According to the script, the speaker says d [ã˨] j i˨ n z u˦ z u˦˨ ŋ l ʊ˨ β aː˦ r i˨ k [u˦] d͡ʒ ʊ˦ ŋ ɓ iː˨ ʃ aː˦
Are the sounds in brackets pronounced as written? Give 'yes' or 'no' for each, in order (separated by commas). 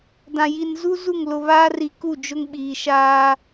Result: yes, no